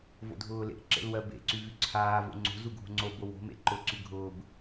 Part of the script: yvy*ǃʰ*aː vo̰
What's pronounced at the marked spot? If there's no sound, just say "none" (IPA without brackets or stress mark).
ǀʰ